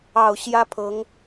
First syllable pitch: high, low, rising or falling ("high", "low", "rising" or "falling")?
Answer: low